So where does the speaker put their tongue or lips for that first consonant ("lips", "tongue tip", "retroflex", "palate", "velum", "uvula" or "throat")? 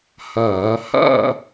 throat